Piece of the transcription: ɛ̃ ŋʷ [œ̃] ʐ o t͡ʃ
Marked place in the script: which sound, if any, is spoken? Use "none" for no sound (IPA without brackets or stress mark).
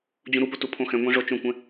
ɛ̃